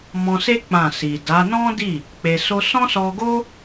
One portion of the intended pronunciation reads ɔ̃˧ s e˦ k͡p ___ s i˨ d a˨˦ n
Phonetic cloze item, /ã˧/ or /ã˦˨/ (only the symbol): ã˦˨